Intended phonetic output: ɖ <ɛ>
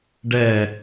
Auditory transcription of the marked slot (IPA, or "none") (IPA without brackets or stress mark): ɛ